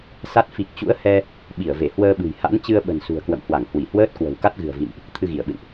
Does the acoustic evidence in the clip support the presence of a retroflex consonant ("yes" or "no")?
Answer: no